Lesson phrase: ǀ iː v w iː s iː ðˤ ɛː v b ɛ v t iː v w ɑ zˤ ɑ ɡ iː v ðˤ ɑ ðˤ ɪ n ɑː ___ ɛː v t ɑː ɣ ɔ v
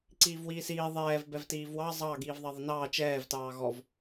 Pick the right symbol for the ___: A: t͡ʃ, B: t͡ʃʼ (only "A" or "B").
A